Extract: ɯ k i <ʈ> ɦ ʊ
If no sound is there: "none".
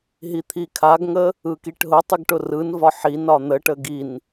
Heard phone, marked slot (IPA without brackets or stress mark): ʈ